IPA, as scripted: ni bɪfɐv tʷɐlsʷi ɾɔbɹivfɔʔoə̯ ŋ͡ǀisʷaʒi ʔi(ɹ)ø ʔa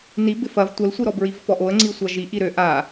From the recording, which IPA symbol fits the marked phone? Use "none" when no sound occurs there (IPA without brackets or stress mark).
ɾ